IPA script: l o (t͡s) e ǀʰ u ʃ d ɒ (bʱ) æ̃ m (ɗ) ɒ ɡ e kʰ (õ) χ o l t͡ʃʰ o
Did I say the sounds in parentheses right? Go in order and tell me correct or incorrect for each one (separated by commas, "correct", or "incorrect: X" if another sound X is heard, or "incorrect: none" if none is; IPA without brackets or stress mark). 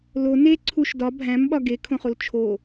incorrect: n, correct, incorrect: ɓ, correct